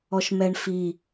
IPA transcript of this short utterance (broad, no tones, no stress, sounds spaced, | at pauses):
ɔ ʃ m ɛ ɳ f i